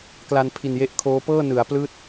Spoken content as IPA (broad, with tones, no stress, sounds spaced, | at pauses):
k l a˧ n pʰ i˨˩ n j e˦˥ ʔ kʰ oː˦˥ p ɤː˥˩ n ɯ˩˦ a̯ p l ɯː˥˩ t̚